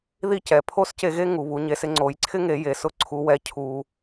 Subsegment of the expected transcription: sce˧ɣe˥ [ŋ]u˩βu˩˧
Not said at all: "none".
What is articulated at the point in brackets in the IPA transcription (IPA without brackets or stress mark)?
ŋ